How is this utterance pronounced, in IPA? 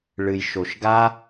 ɭ ɨ˩ j ʃ o˩ ʃ ɡ a˧

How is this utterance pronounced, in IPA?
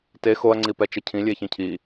t e x o ɐ̯ ŋ͡ǀ i p ɛ t͡ʃ ɘ cʰ ĩ lʲ e ç ĩ cʰ i

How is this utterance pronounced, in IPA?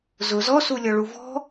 z ʊ z ɔ s u lʲ ɔ ɭ u v ɔ̤

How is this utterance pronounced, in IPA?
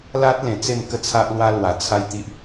l a˦ t̚ l ẽ˨˩ t͡s e˥˧ m k ə˦ t͡sʰ a˦ ʔ l w a˦ l w a˨˩ t͡sʰ a˦ j t̪ i˦ ʔ

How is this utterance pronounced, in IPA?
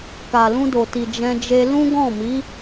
k a˨ l ũ˧ d o˨ t i˨ d͡ʒ ɛ̃˧ d͡ʒ e˧ l ũ˦ ɡ ɔ̃˦˨ m i˨˦

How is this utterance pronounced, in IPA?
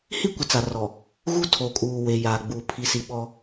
h i˦ kʷ ɪ˨ t͡s a˨ r ɔ˨ | ɣ u˦ tʰ o˨ kʼ uː˨ w e˨ j aː˨ ɡ͡b uː˨ pʰ i˨ s i˨ ɓ ɔ˦

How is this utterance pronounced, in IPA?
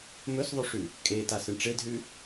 m ɵ s ðˤ ʉ ʂ ʉ | kʼ e t a s ɨ ɳ ʈ͡ʂ e d ɦ ʉ

